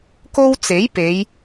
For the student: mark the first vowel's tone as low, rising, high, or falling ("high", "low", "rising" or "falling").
high